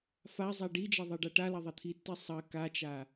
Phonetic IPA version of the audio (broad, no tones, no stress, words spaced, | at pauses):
fazˤa ɖid͡ʒɐ ðˤeɖaʈalɐ ðˤɐt̪ʰitːi sˤɐ kat͡ʃa